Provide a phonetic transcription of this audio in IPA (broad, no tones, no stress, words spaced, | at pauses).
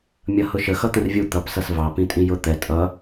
mʲʌhʊʃə xʌt̪ə̃rvʲu t̪ʌp sʌsvɑ pĩtʼĩjʊ t̪ɛ tʼʌ